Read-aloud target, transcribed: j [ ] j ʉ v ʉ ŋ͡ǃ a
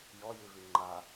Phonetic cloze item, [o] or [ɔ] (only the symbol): ɔ